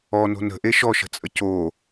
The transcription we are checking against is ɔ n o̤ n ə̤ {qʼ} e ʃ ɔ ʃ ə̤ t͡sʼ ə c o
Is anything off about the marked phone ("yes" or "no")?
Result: yes